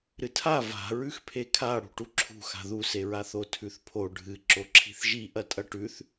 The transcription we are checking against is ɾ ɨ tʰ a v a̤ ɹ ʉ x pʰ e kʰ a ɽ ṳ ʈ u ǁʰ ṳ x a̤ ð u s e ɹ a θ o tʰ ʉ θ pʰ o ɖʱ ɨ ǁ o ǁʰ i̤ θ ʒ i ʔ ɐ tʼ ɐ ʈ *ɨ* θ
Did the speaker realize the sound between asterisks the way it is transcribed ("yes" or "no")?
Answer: no